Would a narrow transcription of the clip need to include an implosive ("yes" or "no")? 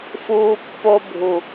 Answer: no